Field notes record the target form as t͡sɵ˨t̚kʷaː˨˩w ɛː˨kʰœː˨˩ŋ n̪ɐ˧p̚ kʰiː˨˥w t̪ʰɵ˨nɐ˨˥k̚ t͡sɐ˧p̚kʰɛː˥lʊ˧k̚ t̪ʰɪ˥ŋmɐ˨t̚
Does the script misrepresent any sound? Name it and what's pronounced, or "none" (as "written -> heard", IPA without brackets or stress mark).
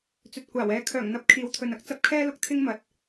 none